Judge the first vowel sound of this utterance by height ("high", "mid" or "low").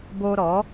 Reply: mid